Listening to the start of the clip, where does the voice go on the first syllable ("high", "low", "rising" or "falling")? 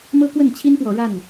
high